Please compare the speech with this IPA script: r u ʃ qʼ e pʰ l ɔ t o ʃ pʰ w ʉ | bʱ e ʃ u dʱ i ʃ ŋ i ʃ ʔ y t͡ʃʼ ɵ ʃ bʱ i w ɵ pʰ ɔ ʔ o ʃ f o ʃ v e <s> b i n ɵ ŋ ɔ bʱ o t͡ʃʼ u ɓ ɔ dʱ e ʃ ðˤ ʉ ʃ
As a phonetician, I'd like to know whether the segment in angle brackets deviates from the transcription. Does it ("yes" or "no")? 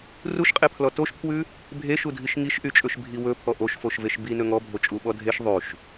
yes